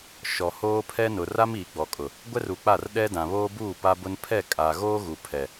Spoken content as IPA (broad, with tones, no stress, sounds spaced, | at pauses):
ʃ ɔ˨ h oː˦ pʰ ɛ˦ n ʊ˨ r a˦ m iː˨ ɡ͡b ɔ˨ kʼ ʊ˨ | ɡʷ ɛ˦ r u˨ k͡p a˦˨ r ɗ ɛ˦ d ã˨ β oː˦ b uː˦˨ p a˦ b ʊ˦ n pʰ ɛ˦˨ kʼ a˨ ɣ oː˦ ɣ u˨ pʰ ɛ˨